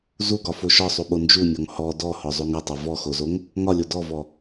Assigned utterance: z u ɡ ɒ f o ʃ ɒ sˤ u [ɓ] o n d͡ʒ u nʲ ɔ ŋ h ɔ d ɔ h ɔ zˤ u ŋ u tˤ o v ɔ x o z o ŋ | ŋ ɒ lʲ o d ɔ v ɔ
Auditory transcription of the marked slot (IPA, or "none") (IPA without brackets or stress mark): ɓ